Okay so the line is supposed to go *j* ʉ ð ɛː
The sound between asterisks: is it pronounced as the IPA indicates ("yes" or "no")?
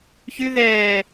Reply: no